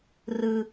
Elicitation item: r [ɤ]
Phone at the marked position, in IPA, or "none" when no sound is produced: ɯ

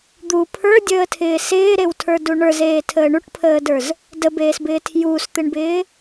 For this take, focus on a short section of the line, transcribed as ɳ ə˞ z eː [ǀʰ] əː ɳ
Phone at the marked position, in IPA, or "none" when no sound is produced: tʰ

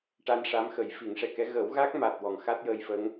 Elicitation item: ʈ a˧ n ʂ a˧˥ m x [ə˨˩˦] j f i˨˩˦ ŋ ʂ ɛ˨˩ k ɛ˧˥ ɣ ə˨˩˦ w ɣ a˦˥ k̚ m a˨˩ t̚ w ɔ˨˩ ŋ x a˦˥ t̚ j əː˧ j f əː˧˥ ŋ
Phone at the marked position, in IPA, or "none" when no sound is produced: ə˨˩˦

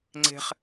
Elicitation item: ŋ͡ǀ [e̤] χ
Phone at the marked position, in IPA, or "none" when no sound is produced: e̤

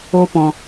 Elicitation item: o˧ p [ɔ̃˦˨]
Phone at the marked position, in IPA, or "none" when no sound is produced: ɔ̃˨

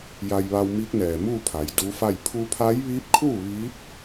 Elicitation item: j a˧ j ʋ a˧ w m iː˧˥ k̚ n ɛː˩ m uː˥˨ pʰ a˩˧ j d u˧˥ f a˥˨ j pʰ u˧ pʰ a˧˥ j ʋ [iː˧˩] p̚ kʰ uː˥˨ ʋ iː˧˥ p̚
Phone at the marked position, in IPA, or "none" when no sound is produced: iː˧˥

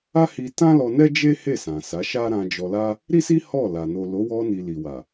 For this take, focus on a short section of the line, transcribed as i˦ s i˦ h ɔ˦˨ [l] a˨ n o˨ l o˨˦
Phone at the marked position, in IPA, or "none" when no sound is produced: l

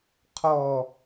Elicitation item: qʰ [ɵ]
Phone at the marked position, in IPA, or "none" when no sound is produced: ɔ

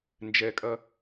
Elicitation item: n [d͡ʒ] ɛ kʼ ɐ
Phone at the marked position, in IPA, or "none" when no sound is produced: d͡ʒ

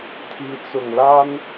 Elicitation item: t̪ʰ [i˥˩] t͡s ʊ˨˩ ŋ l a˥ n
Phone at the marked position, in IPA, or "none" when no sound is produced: i˧˥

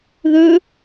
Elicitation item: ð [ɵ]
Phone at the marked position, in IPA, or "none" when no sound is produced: ɵ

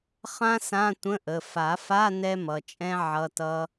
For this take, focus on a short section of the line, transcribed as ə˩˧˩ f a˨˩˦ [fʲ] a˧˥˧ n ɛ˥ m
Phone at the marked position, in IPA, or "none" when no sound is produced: f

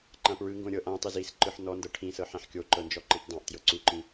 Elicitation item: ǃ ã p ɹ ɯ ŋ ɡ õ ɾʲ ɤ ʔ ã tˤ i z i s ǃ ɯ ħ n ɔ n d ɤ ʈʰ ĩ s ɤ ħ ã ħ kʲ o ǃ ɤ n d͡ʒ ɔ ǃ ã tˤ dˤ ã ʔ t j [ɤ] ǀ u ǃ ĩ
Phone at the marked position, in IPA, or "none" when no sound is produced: ɤ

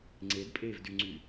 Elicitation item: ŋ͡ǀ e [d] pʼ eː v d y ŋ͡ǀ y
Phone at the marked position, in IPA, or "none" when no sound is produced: d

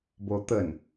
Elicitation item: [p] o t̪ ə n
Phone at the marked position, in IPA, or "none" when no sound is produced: b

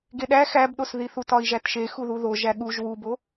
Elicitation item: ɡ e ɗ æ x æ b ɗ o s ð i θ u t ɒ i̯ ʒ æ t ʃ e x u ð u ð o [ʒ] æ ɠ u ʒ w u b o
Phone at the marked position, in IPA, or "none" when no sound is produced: ʒ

